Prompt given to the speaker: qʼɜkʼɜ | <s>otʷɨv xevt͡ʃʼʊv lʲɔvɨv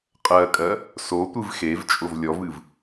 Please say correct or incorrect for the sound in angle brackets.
correct